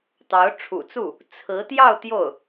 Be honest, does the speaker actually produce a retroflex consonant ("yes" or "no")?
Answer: yes